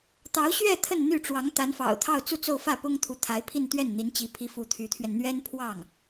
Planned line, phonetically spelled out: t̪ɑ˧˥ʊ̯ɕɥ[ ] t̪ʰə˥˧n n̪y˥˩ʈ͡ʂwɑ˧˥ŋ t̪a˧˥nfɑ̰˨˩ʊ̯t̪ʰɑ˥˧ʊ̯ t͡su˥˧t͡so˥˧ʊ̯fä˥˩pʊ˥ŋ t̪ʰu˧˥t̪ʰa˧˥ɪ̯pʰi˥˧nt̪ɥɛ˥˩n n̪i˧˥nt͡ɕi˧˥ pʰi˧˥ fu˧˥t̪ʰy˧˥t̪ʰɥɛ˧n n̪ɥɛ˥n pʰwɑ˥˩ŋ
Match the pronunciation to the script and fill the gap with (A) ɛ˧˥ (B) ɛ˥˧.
B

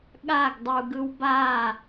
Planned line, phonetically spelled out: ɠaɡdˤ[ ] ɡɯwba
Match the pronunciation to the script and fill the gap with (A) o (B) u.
B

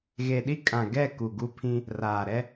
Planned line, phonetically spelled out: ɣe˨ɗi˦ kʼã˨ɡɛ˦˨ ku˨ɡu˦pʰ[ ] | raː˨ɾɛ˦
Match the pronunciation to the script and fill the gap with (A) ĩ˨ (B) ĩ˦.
B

